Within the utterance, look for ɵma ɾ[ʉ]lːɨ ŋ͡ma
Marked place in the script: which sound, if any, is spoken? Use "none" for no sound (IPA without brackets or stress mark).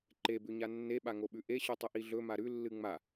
ʉ